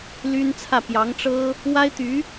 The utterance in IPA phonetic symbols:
l y˥ n t͡sʰ ä˥˩ p j ɑ˧˥ ŋ ʈ͡ʂ ɤ˥ | w a˥ ɪ̯ t̪ y˧˥

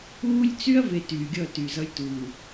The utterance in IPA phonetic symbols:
uː˦ lʲ t͡s y˦ ɐ̯ v e˨ t yː˨ ɡʲ ʌ˦˨ t y˨ z ʌ˦ lʲ t u˨

